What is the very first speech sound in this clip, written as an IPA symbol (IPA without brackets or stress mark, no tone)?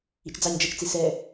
ḭ